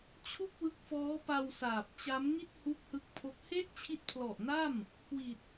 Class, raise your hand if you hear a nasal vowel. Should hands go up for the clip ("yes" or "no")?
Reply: no